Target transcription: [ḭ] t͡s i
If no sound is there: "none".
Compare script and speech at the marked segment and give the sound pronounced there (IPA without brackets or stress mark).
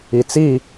i